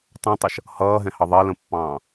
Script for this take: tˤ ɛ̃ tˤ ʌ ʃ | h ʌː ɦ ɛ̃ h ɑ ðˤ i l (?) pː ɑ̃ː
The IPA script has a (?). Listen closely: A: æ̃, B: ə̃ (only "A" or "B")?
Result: B